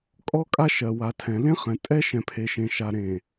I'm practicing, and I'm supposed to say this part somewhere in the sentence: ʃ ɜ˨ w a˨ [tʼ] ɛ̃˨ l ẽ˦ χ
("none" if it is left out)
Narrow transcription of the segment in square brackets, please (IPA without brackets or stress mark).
tʰ